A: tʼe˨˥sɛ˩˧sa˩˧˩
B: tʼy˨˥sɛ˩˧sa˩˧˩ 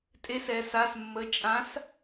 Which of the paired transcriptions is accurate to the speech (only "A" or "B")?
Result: A